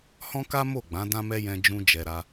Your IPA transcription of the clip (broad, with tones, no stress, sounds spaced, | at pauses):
h ɔ̃˦ k a˦ m o˦˨ ɡ͡b ã˨˦ d ã˦ m ɛ˦ j ɛ̃˧ d͡ʒ ũ˧ d͡ʒ ɛ˧ ɾ a˧